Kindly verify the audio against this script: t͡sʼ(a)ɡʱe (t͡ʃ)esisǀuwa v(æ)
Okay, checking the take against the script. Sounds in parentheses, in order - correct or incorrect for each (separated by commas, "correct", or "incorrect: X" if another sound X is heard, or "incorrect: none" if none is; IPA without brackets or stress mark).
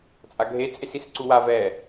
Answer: correct, incorrect: t͡sʼ, incorrect: ɛ